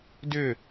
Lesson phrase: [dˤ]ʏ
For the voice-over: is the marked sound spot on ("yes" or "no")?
no